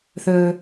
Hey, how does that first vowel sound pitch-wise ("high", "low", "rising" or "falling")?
low